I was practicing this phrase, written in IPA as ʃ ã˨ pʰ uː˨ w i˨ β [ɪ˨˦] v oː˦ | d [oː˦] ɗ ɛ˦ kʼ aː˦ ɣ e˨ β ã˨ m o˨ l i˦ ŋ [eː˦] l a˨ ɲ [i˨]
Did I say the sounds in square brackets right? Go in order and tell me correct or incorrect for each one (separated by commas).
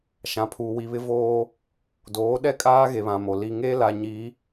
incorrect, incorrect, correct, incorrect